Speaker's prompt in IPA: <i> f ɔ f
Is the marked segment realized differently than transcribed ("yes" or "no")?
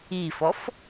no